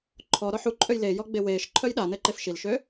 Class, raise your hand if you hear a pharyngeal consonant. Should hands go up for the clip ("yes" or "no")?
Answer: yes